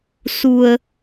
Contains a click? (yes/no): no